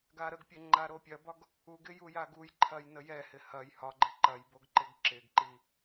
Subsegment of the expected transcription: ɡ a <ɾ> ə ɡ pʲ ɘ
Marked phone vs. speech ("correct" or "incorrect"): correct